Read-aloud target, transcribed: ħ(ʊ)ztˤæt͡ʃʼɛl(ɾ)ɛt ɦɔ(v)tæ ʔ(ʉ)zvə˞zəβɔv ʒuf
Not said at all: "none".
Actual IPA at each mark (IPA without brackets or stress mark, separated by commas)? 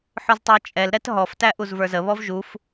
ʊ, ɾ, f, u